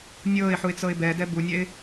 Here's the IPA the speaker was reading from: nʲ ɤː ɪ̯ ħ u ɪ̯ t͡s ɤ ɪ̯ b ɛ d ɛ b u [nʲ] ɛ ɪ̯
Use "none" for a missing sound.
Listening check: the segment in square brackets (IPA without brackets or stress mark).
nʲ